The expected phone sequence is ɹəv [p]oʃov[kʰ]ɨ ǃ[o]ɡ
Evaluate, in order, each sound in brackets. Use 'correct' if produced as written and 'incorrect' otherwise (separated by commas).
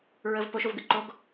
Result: correct, incorrect, correct